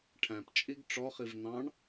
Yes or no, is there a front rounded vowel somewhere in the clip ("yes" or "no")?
no